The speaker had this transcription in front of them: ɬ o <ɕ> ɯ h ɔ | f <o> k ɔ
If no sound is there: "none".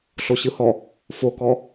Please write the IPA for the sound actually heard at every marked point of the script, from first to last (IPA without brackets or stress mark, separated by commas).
ɕ, o